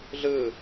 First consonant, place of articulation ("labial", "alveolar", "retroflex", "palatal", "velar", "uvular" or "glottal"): alveolar